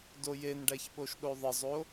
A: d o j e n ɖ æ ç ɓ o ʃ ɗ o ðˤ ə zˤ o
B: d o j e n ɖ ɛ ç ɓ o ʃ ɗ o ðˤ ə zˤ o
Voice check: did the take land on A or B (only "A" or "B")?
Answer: A